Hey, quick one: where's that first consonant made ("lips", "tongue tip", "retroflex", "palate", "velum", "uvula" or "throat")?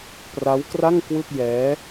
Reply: lips